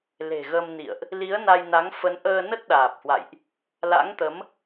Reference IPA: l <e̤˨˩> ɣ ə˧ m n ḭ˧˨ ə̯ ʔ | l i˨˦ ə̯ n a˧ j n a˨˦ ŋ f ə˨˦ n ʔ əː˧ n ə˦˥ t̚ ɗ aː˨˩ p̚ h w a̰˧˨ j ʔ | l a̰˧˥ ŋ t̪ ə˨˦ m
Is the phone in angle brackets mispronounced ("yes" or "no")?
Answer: no